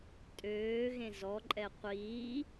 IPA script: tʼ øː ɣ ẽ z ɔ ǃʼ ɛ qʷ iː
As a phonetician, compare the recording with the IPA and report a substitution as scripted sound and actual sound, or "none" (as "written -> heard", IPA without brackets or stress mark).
none